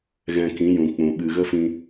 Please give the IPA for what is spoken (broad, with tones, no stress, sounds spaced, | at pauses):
ɣ ɛ̃˧ k ĩ˨˦ j ũ˨ k͡p ũ˨ ɓ ɨ˨ ɣ ə˦ f ĩ˧